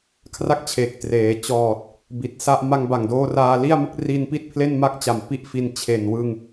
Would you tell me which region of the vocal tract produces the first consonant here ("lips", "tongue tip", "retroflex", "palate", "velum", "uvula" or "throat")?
velum